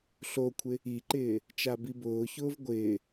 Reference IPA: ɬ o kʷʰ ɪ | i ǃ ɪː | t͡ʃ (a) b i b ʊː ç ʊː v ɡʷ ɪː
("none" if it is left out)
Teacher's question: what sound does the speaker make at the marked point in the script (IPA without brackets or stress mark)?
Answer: a